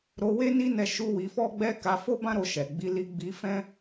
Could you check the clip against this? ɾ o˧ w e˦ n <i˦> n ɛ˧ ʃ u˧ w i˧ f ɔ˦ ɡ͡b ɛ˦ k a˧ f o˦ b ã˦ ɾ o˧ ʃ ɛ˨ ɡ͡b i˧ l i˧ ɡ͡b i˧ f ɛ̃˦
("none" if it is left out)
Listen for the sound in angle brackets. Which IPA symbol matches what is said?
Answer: i˦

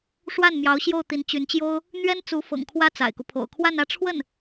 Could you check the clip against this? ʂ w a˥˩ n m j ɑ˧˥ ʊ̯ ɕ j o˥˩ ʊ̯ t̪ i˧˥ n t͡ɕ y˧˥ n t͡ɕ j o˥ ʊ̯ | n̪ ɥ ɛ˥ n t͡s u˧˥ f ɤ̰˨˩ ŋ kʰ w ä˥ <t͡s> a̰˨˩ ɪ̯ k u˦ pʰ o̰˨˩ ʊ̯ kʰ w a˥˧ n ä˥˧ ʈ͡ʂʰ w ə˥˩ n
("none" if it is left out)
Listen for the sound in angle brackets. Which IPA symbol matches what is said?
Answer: t͡s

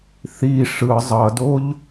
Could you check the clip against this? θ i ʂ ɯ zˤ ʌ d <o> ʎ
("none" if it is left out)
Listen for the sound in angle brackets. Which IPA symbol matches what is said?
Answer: o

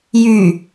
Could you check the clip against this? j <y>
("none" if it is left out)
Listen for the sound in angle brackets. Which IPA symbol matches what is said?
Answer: y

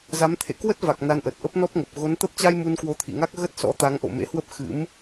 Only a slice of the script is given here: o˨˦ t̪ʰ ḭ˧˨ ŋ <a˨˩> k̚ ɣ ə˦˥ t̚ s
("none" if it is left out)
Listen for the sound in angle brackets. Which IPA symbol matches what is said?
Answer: a˦˥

